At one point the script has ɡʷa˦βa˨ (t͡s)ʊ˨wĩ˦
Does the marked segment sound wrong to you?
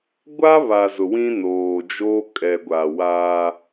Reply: yes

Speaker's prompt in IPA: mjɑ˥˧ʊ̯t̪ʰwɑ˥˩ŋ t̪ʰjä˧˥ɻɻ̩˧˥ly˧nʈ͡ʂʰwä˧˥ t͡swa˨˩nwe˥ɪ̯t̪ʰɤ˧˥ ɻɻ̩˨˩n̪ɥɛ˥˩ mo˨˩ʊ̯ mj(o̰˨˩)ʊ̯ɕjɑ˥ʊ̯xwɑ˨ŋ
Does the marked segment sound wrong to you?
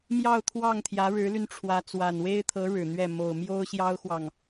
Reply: yes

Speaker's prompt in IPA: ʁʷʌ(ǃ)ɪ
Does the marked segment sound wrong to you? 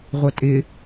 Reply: yes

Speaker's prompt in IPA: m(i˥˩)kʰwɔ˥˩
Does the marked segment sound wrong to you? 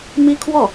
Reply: yes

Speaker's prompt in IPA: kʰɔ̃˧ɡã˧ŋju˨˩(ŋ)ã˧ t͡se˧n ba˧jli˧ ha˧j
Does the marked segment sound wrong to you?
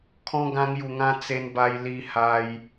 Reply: no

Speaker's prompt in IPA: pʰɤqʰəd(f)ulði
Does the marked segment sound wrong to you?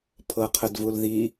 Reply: yes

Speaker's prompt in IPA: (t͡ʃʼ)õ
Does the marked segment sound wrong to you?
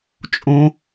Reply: no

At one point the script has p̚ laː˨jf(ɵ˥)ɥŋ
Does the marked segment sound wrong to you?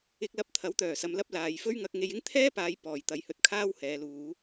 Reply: no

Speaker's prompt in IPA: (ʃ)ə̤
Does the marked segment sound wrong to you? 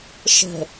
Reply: no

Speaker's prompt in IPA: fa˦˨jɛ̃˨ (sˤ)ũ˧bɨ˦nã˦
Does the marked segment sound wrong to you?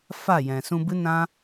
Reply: yes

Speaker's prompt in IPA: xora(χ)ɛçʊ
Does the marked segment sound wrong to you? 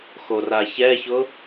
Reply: yes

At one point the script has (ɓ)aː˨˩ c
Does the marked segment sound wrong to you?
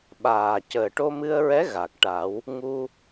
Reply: no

